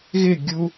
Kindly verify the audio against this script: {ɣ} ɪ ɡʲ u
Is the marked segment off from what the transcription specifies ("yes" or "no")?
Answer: no